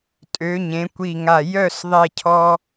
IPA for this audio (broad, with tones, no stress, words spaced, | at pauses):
tʼø˩˧ ɲẽ˩˧kʷi˧˩ŋa˧˩ jœ˥˧s ðˤe˥˧cʰɔ˥